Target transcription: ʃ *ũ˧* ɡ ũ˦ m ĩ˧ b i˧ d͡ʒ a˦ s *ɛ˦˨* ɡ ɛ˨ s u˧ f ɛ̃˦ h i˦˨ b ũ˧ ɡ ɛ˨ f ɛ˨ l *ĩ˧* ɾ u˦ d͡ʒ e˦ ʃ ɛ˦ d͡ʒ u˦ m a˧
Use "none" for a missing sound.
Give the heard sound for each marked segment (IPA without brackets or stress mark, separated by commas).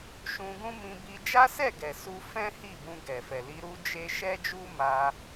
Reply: ũ˧, ɛ˦˨, i˧